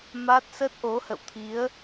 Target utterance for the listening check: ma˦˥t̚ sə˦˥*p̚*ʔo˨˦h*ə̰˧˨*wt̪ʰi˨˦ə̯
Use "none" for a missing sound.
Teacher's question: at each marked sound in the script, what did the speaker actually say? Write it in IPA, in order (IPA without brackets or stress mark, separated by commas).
t̚, ə̰˧˨